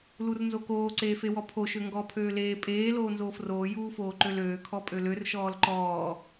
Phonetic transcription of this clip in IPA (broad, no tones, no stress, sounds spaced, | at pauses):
l u r n z o k oː ǀ eː f e w ɔ pʰ o ʃ ø ŋ ɡ ɔ pʰ øː l eː pʼ eː l oː n z oː f r oː j uː f oː ǃ ø l øː kʰ ɔ pʼ ø l ø r ʃ ɔː l ǃ ɔː